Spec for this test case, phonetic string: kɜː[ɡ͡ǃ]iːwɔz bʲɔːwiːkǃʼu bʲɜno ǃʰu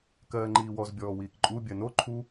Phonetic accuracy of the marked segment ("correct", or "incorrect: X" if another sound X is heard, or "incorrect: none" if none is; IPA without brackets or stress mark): incorrect: ŋ͡ǃ